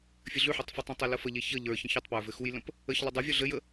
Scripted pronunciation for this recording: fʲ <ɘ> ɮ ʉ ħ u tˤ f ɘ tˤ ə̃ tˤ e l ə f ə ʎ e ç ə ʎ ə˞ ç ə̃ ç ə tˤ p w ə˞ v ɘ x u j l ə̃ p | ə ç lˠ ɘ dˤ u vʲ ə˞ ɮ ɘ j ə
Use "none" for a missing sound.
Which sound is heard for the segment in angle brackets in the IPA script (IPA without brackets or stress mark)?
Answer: ɘ